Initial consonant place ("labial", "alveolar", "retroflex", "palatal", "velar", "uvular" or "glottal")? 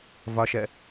labial